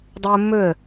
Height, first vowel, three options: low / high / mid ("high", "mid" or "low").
high